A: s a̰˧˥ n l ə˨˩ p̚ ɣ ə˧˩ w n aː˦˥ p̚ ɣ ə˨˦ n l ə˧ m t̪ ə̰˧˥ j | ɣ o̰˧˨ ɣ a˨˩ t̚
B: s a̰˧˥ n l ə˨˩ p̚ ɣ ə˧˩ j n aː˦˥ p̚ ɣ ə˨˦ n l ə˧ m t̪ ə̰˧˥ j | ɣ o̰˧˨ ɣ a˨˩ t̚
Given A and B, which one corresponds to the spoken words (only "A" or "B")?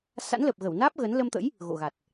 A